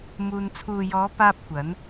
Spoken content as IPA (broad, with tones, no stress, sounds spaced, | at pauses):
m uː˧ n t͡sʰ uː˨ j ɔː˨˧ p aː˥ p̚ kʷ ɐ˨˥ n